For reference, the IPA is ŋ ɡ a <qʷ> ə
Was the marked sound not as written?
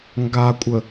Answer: yes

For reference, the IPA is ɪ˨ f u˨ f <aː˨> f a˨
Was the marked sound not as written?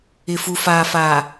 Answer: no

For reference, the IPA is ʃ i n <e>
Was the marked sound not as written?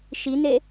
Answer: no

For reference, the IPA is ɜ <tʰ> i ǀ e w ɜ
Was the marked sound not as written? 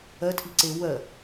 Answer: no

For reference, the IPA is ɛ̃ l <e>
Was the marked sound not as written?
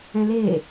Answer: no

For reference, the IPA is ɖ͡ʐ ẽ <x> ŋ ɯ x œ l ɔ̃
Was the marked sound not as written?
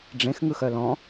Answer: no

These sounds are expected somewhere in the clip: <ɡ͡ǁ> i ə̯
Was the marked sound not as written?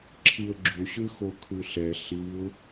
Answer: yes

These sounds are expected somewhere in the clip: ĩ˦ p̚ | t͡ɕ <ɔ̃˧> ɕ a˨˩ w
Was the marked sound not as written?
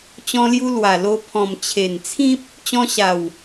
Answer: yes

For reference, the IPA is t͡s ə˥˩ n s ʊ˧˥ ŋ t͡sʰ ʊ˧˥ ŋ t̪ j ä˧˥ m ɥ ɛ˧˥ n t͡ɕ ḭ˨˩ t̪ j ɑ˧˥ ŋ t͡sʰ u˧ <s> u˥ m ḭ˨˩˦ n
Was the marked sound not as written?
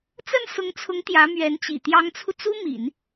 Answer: yes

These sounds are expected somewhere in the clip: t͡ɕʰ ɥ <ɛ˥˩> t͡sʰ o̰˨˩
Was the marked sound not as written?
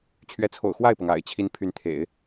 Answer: yes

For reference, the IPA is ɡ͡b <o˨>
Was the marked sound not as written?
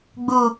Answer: yes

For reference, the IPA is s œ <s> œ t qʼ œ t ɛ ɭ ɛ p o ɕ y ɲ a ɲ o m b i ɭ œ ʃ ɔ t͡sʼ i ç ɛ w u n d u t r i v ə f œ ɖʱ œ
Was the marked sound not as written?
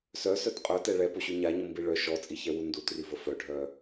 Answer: no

